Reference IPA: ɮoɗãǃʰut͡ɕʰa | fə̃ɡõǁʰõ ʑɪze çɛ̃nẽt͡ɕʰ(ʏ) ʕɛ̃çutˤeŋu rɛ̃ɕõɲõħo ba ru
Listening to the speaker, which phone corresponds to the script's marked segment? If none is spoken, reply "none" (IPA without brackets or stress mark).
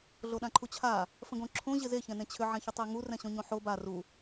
ʏ